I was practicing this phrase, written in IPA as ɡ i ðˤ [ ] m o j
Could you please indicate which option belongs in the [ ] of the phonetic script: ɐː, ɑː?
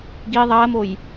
ɐː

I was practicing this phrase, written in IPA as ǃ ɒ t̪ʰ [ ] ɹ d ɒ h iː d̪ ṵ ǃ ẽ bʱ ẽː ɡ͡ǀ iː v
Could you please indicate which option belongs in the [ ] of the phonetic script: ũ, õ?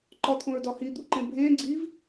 õ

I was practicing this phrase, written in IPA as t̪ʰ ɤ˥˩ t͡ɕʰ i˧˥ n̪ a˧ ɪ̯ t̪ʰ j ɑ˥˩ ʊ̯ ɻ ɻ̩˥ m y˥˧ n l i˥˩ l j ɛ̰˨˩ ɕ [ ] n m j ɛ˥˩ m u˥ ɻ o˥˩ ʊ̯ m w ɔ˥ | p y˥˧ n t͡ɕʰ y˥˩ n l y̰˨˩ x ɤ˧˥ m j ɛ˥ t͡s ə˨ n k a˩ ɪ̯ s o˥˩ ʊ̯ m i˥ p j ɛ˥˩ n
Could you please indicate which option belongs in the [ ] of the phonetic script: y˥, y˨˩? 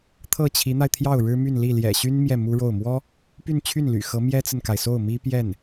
y˥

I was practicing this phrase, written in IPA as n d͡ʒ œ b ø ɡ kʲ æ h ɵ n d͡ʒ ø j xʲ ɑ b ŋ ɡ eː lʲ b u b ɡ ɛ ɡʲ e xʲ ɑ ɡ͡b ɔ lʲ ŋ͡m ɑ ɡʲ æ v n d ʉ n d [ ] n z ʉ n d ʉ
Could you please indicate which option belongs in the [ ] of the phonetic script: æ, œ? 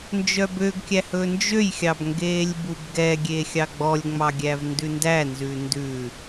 æ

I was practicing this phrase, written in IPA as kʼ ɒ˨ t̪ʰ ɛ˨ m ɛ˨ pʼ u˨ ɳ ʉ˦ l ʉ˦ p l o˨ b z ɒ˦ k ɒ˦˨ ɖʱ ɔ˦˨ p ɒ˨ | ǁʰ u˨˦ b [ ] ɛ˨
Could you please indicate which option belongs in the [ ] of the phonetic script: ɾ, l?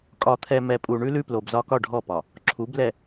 l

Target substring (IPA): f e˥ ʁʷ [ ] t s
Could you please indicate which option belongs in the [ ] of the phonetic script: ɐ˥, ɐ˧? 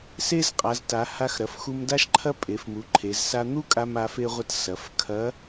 ɐ˥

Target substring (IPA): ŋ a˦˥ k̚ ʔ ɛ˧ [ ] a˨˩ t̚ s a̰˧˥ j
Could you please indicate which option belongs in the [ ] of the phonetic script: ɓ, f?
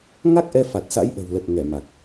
f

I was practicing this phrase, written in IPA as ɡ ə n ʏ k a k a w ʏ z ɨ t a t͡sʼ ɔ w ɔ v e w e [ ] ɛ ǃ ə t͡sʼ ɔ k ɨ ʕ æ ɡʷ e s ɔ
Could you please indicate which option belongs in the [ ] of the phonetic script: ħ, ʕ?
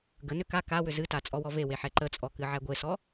ħ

